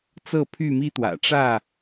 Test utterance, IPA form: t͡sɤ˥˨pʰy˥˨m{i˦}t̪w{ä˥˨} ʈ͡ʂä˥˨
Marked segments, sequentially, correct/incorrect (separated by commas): correct, incorrect